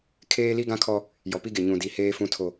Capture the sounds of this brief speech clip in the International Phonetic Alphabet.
kʰ eː˦ l i˦ ɡ ã˦ kʰ ɔ˦ | j ɔ˨ p i˦ ɡ e˨ ɲ ũ˨ d i˨ h eː˦ f ũ˦ tʰ o˨

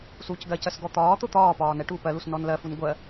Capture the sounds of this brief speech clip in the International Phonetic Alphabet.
s uː c ɡ ɜ c ɜ s ɡ ɔ t̪ ɒː t̪ ʊ t̪ ɒː p ɒː n ɛ ʈ uː p ɜ l u s n ɔ n l ɜ f u n ɡʷ ɜ

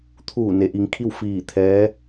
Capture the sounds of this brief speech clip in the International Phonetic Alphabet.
t̪ʰ uː˧˩ n e˩˧ ʔ i˩˧ ŋ kʰ i˥˨ w f iː˧˩ t̪ʰ ɛː˧˥

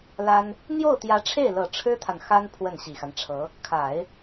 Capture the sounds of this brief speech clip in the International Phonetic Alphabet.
l a˥ n | n̪ j o˥˩ ʊ̯ t̪ j ä˧˥ ʈ͡ʂʰ e˥˩ ɪ̯ l ɤ˨˩ ʈ͡ʂʰ ɻ̩˥ t̪ʰ a˨ n x a˥ n pʰ w ə˥˩ n ɕ i˨˩ x a˦ n ʈ͡ʂʰ ɤ˧˥ | kʰ a˨˩˦ ɪ̯

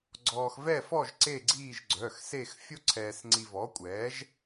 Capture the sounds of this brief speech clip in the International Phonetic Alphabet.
ɡ͡ǀ ɔː˧ x v ɛ˥˧ f ɔ˥˧ ʒ ǀ e˥˧ ɡ͡ǀ iː˥˧ ʒ ɡ͡ǀ œ˩˧˩ x s e˥˧ x fʲ o˥ ǀʰ ɛː˧ s ŋ͡ǀ i˧ v ɔ˨˥ kʷʼ ɛː˨˥ ʒ

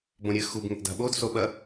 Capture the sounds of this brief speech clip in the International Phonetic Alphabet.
b õ ɾʲ ɘ x u b ŋ e ʔ d a̤ ɓ o d s o ɓ ɐ

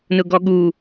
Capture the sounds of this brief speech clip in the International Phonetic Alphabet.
n ʊ ɡ ɔ ɠ u

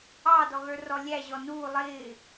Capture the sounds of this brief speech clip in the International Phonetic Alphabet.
ɑ d ɔ ɣ ə˞ r ɔ lʲ æ ʑ ɔ n uː lˠ ɪː

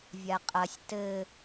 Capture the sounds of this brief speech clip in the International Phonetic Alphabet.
vʲ a qʼ ɐ sʲ t ɘ

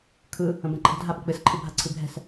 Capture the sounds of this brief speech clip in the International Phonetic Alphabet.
kʰ ɯ | ə̃ b ɛ̃ ǃʰ ə̤ dʱ a ɓ ə̤ k͡p ɨ s ǃʰ ɨ bʱ a ǀʰ ɨ bʱ ɛ̤ s

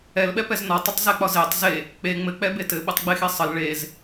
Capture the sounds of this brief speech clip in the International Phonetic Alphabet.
ɛ l ɓ ɛ p ɛ z n ɒ tˤ ɘ tˤ z ɛ k͡p ɒ z e tˤ z e | k͡p e ŋ͡m ɘ k͡p ɛ b e t ɘ ɓ ɘ tˤ ɡ͡b e x e sˤ ə l ɭ e z

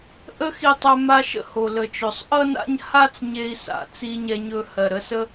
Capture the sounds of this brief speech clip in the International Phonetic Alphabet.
ʔ ə˥ x i˧ tˤ ɵ˧ m a˧ ʃ ə̰˧ h o˩ l ə˩ t͡ʃ ɵ˩ sˤ ʔ ʌ˥ n a̰˥ ɲ h a˥ t͡s ɲ e˧ i̯ s a̰˩ t͡s i˧ ɲ ɛ˧ ɲ ɵ˧ h ɜ˩ ɾ ə˧ s ə˥

